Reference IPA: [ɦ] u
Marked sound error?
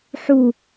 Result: yes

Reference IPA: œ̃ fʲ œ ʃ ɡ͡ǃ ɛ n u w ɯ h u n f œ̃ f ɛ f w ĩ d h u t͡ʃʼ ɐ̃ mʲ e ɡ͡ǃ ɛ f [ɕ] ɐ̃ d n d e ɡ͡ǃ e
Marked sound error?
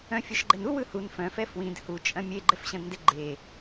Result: no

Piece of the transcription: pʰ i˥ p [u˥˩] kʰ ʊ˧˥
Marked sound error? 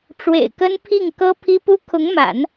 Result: yes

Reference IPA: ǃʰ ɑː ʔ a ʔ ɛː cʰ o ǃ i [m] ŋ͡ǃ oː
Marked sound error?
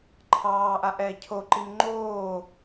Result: no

